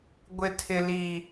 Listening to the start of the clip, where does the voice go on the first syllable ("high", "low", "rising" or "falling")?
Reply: high